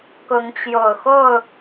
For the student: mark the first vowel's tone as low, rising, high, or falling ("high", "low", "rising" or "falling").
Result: rising